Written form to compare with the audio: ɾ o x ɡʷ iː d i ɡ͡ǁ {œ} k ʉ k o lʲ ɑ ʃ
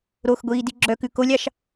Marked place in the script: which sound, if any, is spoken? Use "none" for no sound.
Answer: œ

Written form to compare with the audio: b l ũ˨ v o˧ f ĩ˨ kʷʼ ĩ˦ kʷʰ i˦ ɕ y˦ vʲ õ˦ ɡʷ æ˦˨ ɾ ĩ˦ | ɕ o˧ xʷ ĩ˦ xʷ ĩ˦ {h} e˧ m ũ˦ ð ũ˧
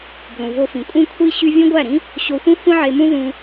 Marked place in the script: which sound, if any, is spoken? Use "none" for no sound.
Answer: ʕ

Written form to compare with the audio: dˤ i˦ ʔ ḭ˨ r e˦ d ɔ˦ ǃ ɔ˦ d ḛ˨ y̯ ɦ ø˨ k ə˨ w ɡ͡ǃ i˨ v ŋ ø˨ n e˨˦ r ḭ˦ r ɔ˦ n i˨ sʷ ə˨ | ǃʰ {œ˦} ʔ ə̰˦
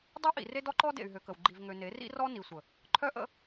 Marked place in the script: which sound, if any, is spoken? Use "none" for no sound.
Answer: œ˦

